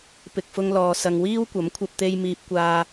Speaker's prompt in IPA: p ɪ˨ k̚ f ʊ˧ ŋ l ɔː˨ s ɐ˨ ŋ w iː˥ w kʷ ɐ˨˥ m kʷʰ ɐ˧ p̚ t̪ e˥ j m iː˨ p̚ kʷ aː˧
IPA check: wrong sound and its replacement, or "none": e˥ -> e˧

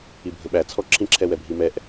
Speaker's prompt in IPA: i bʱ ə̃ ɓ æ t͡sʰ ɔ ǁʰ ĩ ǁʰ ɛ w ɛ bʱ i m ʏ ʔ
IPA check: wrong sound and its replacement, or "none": ʏ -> ɛ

